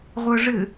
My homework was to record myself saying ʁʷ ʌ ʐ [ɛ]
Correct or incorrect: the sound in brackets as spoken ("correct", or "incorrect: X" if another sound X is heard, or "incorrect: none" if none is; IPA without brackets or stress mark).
incorrect: ɘ